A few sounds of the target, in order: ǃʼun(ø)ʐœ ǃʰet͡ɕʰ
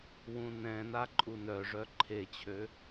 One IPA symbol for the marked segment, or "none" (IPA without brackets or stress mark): œ